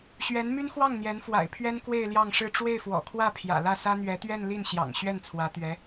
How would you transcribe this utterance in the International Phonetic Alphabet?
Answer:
ɕ ɥ ɛ˧˥ n m y˥ n x w ɑ˥˩ ŋ n̪ j ɛ˧˥ n f w a̰˨˩ ɪ̯ pʰ ɥ ɛ˥ n k w e˥˧ ɪ̯ l j ɑ˥˧ ŋ ʂ ɻ̩˥˧ ʈ͡ʂ w e˥˩ ɪ̯ f w ɔ̰˨˩ kʰ w ä˥˩ pʰ j ä̰˨˩ l ä˥˩ s ä˥ n̪ ɥ ɛ˧˥ t̪ ɥ ɛ˥˧ n l i˥˩ n ɕ j ɑ̰˨˩ ŋ ɕ ɥ ɛ˥˩ n t͡sʰ w ä˧˥ t̪ ɥ ɛ˧˥

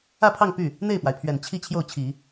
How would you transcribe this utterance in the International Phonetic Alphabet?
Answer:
ä˥˧ pʰ ɑ˥˧ ŋ p y˥˩ | n̪ e˥˩ ɪ̯ p w a˩ ɪ̯ pʰ ɥ ɛ˨˩ n t͡ɕʰ i˥˧ t͡ɕʰ j o˥˩ ʊ̯ t͡ɕʰ i˨˩˦

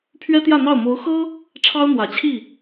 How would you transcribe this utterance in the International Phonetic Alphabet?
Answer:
pʰ ɥ ɛ˥ t̪ j ä˥˧ n̪ ɑ˥˩ ʊ̯ m o˧˥ ʊ̯ x ɤ˥ | ʈ͡ʂʰ ɑ˥ ʊ̯ n̪ w ä˨˩ t͡ɕʰ i˥˩

